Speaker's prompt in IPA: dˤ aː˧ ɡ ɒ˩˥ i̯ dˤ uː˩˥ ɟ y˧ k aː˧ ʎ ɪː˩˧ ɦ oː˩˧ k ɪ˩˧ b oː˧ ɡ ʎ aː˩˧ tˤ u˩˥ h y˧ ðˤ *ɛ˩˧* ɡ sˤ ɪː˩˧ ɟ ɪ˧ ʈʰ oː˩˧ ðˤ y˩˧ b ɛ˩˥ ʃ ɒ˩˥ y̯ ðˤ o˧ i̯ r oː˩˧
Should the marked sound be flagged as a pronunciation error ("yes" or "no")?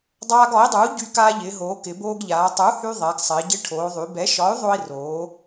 no